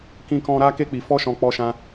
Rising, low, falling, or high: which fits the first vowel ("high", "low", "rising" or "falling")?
high